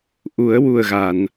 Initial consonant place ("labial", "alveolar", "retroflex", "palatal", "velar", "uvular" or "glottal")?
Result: glottal